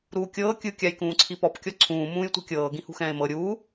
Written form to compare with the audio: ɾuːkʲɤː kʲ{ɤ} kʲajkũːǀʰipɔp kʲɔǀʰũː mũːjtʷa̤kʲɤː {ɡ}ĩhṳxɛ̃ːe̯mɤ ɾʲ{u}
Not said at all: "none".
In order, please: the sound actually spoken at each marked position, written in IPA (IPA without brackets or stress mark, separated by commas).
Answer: ɯ, ɡ, uː